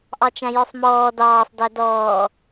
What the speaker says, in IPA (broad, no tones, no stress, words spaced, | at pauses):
ʔɑt͡ʃæ̃jɔsˤmɔː dɑːsˤ dædɔː